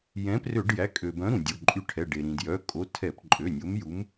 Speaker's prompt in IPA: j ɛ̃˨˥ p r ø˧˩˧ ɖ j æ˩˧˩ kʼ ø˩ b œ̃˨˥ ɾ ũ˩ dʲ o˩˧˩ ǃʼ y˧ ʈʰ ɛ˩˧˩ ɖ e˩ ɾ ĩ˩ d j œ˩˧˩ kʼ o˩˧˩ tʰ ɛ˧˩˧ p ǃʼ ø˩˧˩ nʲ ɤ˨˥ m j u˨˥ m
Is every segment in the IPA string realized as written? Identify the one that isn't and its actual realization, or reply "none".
ɤ˨˥ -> o˨˥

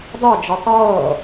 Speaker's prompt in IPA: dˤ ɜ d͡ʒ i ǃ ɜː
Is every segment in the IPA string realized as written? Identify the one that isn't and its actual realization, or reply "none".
ǃ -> tˤ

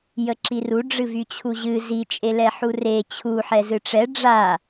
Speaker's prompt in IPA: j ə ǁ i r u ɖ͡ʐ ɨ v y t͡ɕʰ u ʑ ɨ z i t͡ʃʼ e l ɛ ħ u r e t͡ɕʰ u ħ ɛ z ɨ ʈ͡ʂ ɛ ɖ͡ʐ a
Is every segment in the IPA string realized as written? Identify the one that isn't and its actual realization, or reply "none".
none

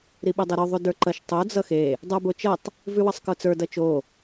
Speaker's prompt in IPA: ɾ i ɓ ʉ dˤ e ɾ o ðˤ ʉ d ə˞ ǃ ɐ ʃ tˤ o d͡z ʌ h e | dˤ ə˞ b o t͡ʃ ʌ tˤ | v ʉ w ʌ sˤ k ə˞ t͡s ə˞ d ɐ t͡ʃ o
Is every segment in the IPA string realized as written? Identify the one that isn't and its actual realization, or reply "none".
h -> x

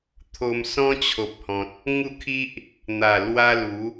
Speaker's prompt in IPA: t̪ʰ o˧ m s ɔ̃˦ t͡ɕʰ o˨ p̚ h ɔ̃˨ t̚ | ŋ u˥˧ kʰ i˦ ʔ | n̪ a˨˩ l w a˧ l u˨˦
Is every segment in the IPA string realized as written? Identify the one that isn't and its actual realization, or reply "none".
none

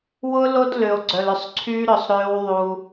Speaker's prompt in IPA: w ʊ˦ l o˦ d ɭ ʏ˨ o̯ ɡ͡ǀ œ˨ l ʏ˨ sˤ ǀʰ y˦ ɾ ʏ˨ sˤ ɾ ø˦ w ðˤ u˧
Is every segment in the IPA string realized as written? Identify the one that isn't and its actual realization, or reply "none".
ɭ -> l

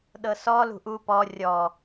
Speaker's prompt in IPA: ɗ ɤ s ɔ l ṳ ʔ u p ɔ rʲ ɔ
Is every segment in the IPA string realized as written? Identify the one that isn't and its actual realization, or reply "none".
none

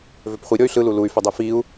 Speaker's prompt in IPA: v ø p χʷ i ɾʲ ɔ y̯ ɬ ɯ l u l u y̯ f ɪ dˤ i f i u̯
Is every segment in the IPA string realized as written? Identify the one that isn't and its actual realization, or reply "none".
none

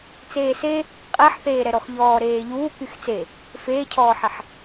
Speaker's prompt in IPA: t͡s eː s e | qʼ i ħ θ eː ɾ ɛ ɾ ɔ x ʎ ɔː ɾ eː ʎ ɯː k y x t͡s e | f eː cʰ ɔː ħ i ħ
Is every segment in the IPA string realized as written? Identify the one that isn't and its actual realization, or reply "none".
ɯː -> uː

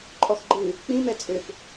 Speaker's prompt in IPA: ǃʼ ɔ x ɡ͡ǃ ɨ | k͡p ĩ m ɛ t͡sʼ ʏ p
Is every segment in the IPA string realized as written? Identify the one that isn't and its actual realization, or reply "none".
none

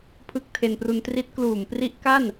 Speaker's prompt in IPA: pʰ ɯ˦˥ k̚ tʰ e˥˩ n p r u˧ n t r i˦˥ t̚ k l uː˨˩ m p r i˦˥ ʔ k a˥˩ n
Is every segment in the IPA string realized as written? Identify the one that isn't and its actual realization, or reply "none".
e˥˩ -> e˧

